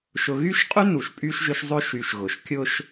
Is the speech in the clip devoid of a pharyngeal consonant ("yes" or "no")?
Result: yes